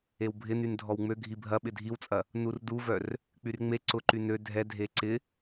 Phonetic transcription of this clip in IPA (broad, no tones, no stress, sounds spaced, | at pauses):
e w bʱ ɪ n y n dʱ ɔ w ŋ͡m ø ɡʱ i bʱ ɐ ɓ ɪ dʱ i w t͡sʼ ɐ | n u r d u v œ r | k͡p y r ŋ͡m e ǀ ʊ ǃ y n ø dʱ ɛ dʱ e ǀ ɪ